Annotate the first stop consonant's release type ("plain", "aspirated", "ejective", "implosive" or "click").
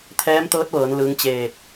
aspirated